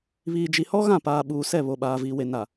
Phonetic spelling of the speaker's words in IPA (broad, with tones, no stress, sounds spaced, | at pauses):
β iː˨ d͡ʒ i˨ h ɔ˦ ɣ ã˦˨ p aː˨ ɓ uː˨ s ɛ˦˨ β o˨ ɓ aː˨ v iː˨ w e˨ n a˨